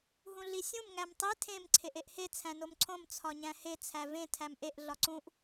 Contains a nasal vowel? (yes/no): yes